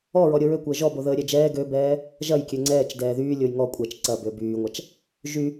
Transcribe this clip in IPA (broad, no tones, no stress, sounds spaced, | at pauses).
ɔ ɹ ɔ ɾʲ o ɹ ø kʷ əː ʒ ɔ b o ð əː ɾʲ ɛ d͡ʒ ɛː ɡ ø b ɛː | ʒ ɐ j kʲ ø ŋ͡ǀ ɛː t͡ʃ d ɛː ð yː lʲ o j ŋ ɔ kʷʼ ɛ t͡ʃ ǀ ɐ b ø b yː ŋʷ a t͡ʃ | ʒ y